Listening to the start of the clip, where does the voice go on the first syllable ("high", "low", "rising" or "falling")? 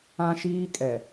high